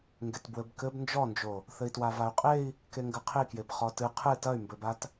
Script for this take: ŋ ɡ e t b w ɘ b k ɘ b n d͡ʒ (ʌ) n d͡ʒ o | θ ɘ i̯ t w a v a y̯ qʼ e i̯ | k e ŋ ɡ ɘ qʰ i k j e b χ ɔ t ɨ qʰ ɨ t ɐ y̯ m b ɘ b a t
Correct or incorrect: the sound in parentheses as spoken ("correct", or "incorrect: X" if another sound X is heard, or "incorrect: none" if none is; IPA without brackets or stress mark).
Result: incorrect: ɔ